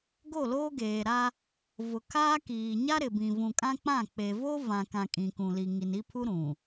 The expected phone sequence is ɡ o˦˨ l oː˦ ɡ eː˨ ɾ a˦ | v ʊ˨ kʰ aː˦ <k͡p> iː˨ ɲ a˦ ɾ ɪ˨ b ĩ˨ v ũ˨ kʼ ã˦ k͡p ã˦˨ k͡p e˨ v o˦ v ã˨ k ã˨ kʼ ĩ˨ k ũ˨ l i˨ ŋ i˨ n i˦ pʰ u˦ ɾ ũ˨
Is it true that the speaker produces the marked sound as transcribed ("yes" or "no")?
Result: no